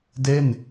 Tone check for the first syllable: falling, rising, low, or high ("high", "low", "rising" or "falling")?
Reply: falling